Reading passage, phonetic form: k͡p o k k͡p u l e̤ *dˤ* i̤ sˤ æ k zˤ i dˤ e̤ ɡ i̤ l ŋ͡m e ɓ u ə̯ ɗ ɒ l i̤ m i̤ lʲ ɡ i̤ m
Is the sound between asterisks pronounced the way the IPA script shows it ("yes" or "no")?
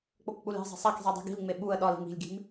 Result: no